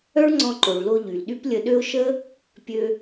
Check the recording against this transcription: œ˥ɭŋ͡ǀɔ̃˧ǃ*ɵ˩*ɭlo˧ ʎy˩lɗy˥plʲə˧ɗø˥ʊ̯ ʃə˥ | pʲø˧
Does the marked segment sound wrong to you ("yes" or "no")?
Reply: yes